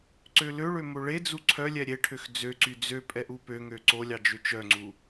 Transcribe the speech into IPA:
ǀøløɭø moɭed͡zu ǀʰœlʲɛ ɾʲeʈʰøx d͡zøǀy d͡zø pʼɛʔupøŋø ǀolʲɑ d͡ʒøt͡ʃœŋ͡ǀu

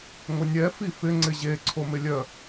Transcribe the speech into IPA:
ŋʷənʲɛ fifɪ ŋ͡ǀɪʑe ǀʰomɪlʲœ

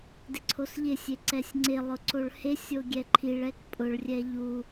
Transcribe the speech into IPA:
dɪǀʰosʎɪsʲe ǀɛsʲŋ͡ǀɪlˠʊ ǀoɭhesʲo ɡʲɛǃʰiɭɛk pʼʊɭrʲɛ ʎu

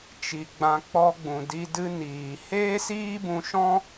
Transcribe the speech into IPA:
t͡ʃi˨ ɡ͡bã˧k͡pɔ˧ɡ͡bũ˨di˧ dɨ˧ niː˨ heː˦siː˦bũ˧ʃɔ̃˦

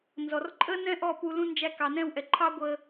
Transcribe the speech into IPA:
nzɔ˨rǃʼə˦nɛ̃˦ ʔɔ˦˨pu˧ lũ˦ nd͡ʒæ˧kɑ˨nɛ̃˦˨wʔɛ˨ ǃʰɑ˦ɡʷə˧

